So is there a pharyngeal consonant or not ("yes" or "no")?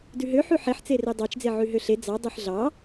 yes